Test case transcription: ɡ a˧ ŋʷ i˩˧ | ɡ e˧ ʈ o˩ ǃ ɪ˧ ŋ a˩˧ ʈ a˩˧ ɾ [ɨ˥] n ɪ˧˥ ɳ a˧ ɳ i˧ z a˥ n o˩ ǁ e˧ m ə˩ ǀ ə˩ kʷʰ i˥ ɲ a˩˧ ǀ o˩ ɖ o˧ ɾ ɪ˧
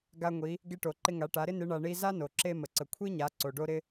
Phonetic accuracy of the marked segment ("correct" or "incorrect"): incorrect